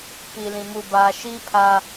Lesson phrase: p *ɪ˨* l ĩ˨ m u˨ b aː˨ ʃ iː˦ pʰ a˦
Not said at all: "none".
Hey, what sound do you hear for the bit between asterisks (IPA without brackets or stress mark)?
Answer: i˨